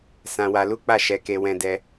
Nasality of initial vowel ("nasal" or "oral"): nasal